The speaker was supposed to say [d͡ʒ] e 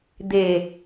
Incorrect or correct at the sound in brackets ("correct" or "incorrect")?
incorrect